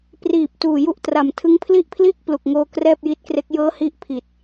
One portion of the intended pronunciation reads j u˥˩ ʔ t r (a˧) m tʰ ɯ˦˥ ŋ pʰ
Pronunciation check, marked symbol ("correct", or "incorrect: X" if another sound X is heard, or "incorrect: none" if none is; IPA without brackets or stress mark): incorrect: a˨˩